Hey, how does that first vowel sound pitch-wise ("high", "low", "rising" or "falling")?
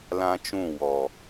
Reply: high